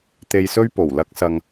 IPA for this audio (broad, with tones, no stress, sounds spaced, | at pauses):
t̪ e˧ j s ɵ˥ ɥ p o˨˩ w l ɐ˥ k̚ s ɐ˧ ŋ